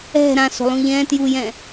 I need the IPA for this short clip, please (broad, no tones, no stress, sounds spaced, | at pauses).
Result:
ɛ̤ ɾ ã s o̤ lˠ ũ ʎ ɛ̃ t j u j ɛ̃